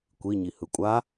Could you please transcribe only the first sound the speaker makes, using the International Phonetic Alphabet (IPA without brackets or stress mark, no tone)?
kʷ